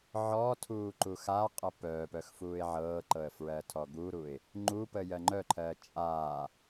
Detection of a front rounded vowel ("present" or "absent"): present